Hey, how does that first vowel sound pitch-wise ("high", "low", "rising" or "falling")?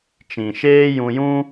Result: low